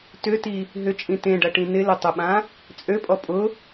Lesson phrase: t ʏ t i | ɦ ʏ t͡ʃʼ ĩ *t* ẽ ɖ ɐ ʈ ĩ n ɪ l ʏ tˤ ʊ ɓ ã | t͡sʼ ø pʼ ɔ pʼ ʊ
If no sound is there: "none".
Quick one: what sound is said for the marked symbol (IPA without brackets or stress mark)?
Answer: t